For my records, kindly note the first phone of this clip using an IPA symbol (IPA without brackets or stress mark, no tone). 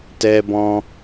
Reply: t